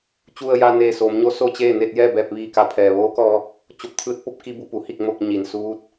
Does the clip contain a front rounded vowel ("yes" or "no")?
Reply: no